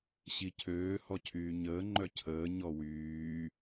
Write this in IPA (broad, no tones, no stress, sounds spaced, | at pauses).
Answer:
ɕ i cʰ øː h ɔ cʰ yː ɲ əː ŋ͡ǃ œ cʰ əː ɲ ɔ w yː